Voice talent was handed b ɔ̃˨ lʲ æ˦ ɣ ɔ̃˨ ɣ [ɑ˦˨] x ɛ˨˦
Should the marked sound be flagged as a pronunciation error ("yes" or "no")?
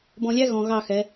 no